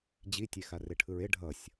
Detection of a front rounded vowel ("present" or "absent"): absent